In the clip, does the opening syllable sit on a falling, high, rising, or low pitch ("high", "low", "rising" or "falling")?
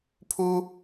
high